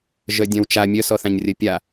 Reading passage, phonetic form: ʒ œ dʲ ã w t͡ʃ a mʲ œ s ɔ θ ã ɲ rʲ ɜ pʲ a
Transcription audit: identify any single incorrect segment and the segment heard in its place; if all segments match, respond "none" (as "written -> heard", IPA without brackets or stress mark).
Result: none